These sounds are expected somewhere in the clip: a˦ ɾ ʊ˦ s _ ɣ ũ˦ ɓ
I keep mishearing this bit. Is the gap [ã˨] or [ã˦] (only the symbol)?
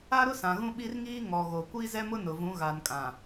ã˨